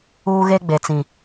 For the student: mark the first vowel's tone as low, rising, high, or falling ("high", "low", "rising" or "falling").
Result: high